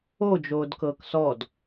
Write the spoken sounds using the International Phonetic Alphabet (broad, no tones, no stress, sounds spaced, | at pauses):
o d͡ʒ oː d k ɤː k s ɔ d